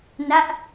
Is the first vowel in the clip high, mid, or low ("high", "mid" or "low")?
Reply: low